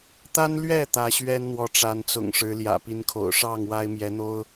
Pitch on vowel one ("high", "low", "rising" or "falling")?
high